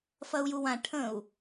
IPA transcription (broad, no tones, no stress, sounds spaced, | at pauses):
f ɐ u̯ j u w ã ʈʰ ə̃ u̯